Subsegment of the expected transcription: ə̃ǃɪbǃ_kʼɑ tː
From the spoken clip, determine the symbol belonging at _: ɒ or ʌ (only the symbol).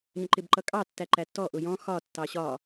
ʌ